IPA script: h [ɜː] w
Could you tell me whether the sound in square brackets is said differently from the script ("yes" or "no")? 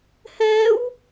yes